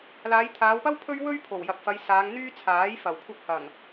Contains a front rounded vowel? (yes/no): yes